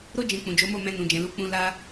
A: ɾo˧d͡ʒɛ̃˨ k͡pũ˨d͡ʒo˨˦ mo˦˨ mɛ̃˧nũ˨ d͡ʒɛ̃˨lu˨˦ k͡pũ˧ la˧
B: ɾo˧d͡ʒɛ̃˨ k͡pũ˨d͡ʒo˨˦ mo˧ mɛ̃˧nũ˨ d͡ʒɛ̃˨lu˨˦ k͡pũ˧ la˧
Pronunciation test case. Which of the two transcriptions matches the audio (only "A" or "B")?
A